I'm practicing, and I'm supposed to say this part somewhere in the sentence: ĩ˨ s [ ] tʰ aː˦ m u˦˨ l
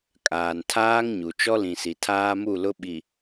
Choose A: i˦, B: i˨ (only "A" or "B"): B